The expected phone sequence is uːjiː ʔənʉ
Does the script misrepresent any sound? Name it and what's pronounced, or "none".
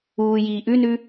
ə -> ʉ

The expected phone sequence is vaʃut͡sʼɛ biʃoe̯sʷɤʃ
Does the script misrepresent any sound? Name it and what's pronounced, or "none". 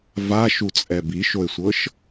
none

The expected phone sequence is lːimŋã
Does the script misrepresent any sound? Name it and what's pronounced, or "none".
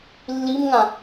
none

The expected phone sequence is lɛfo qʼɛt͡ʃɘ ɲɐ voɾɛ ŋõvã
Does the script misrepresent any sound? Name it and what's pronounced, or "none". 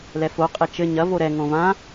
none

